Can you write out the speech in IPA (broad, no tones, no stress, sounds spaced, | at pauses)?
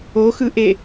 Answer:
o x ɯ ʔ e